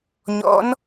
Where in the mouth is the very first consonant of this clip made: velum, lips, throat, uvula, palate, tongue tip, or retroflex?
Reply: palate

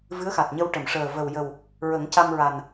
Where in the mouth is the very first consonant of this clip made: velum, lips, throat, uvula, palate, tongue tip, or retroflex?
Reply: lips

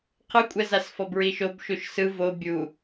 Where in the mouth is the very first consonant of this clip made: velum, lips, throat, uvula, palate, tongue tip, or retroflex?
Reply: uvula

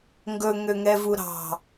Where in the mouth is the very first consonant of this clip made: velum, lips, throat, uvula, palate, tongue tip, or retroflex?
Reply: velum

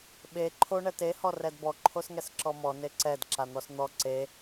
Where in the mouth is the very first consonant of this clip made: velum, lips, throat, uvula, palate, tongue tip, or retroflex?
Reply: lips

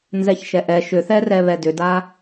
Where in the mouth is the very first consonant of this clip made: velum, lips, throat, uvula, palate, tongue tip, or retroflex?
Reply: tongue tip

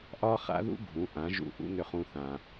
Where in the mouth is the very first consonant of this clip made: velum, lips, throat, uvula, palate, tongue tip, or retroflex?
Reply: throat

